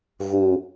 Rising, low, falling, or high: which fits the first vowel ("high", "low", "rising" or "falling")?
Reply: high